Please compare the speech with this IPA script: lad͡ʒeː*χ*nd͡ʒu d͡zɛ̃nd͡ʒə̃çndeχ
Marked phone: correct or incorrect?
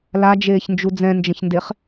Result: incorrect